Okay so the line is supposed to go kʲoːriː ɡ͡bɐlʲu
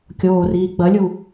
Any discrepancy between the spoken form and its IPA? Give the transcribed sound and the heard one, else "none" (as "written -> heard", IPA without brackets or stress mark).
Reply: none